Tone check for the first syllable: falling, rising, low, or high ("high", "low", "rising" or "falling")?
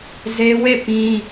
high